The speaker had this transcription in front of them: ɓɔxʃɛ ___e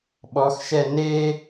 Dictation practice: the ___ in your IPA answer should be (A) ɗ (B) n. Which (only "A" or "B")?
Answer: B